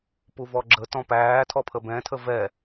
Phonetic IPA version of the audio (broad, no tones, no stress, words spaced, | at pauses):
puvɔɡ͡ǁə tɔ̃pæːtʰɔ pʰəbɛ̃tʰə vɛ